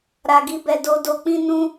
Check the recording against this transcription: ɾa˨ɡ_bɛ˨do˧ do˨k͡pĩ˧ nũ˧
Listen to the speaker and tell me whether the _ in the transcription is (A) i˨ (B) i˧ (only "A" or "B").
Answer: B